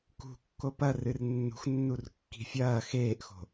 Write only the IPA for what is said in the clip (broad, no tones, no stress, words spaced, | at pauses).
kṳ kːopɐ rɨrnːṳxnːur kːi̤fʲɐː xeːʔxo̤